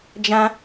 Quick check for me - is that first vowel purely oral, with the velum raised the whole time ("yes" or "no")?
no